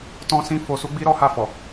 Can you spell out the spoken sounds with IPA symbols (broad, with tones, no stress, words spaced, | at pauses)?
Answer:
tɔ̃˦sĩ˦ fo˧su˦ɡ͡bi˦ɾɔ˦ ha˦˨fɔ˨